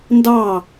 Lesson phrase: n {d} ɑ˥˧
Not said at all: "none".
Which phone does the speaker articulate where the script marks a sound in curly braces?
d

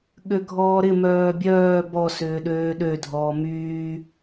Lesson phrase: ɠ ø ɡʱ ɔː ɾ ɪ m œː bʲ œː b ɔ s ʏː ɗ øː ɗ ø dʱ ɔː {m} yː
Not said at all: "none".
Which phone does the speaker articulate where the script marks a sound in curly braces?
m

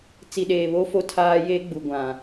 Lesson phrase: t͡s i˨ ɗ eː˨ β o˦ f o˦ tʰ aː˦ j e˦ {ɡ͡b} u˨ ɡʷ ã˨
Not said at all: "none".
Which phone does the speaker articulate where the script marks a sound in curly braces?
ɡ͡b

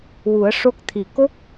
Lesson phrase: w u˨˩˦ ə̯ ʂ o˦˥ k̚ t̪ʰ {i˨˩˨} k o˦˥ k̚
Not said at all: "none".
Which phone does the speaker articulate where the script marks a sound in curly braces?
i˨˩˨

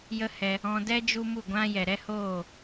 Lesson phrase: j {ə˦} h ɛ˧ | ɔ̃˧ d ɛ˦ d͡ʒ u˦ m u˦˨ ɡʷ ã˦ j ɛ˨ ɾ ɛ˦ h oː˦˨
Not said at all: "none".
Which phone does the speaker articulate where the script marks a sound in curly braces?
ə˦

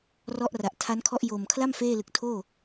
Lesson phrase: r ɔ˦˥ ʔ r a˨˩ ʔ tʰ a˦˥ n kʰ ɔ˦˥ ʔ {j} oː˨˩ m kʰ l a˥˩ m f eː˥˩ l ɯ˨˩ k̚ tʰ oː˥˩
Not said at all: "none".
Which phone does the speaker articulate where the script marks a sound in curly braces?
j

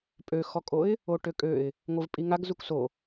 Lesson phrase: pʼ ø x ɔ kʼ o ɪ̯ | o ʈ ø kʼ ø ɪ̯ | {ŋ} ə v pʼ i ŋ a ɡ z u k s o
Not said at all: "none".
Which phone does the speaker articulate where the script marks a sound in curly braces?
ŋʷ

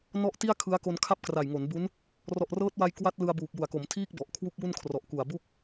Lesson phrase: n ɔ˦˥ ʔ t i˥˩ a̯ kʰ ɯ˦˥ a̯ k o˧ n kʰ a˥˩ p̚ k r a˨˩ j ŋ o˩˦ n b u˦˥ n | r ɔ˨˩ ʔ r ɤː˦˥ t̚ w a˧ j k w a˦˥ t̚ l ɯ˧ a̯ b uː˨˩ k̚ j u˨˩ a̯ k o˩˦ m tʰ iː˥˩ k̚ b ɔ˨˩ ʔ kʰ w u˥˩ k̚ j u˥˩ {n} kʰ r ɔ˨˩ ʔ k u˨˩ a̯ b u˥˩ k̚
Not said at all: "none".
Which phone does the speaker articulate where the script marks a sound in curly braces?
n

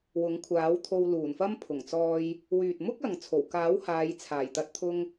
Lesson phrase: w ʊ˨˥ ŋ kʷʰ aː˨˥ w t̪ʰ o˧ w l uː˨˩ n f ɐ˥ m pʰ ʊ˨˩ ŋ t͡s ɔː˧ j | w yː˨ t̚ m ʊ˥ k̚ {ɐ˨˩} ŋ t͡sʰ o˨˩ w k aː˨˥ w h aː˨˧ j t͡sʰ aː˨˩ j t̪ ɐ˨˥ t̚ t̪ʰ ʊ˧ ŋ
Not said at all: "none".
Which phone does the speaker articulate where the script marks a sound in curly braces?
ɐ˨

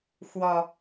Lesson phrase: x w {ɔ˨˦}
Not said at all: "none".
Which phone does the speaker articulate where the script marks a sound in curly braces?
ɔ˨˩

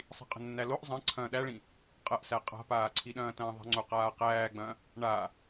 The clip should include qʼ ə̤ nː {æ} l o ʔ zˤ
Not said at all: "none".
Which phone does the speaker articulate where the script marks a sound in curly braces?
æ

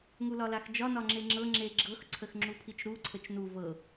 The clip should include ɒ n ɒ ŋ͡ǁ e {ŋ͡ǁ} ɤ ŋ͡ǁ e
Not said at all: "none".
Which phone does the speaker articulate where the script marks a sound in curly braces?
ŋ͡ǁ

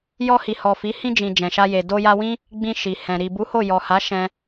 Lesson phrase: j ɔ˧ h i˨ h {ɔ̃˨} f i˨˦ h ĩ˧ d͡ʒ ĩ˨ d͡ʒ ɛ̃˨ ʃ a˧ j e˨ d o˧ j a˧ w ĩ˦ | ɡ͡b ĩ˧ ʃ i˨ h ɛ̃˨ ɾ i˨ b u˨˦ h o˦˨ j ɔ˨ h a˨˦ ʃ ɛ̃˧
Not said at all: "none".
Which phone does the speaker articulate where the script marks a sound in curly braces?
ɔ˨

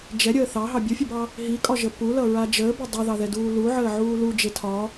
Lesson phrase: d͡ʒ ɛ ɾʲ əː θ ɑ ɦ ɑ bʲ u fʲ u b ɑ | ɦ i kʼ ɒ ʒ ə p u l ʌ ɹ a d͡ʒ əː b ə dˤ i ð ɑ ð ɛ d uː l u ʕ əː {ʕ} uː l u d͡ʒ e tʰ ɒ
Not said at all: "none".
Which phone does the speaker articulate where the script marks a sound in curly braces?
ʕ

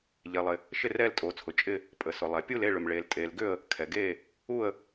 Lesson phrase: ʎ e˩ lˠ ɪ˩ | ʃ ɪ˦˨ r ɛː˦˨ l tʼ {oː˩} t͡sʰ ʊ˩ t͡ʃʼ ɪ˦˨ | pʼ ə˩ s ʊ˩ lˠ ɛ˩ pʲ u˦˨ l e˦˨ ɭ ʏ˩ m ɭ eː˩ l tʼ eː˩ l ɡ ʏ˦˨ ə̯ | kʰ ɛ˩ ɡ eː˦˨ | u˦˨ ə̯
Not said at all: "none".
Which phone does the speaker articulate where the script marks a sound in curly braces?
oː˩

